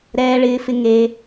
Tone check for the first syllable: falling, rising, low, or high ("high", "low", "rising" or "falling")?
high